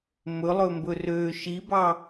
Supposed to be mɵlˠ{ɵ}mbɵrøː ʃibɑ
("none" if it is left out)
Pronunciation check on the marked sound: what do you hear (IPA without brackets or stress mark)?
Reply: ɵ